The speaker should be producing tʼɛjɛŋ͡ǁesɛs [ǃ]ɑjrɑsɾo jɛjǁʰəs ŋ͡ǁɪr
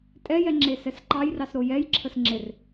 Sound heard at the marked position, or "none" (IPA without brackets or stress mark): ǃ